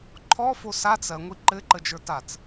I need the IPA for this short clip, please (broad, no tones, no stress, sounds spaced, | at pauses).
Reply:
ǃʰ ɔ f o s a t͡s ɜ ŋʷ i ǃ ɘ ǃ ə d͡ʒ ə˞ t a t͡s